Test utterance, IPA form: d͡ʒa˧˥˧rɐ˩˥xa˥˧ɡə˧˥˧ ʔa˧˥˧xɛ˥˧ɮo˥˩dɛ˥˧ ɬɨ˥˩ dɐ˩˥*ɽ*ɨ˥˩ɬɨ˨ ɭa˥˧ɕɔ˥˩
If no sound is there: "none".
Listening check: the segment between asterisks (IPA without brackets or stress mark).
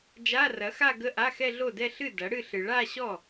ɽ